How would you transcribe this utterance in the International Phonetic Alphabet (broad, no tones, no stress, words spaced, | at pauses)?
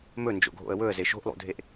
mɵnd͡ʒo̰ɡʱo̰ə̯ wɵə̯ze ʃo̤ʔlˠṵdʱeʔ